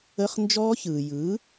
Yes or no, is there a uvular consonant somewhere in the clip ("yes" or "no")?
yes